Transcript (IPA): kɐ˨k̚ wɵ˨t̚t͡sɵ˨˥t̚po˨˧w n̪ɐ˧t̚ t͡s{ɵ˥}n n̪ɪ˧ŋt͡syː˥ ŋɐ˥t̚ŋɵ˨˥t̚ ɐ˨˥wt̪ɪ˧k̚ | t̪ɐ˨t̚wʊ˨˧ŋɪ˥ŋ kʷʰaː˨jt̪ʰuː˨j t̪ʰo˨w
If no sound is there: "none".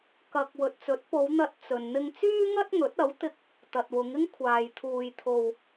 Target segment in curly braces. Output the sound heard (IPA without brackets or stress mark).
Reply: ɵ˨